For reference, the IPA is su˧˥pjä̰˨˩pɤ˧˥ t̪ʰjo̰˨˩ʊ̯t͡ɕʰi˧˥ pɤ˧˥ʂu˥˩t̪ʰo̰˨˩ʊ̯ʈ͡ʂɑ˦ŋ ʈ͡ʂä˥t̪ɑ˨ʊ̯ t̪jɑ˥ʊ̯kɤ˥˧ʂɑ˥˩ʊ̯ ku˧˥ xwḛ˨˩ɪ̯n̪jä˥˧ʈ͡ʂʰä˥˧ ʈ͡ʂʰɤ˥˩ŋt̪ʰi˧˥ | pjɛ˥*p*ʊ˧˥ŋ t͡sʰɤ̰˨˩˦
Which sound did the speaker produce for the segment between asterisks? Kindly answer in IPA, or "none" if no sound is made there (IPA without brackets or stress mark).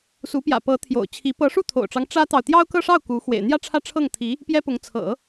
p